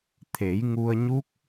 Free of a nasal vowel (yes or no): yes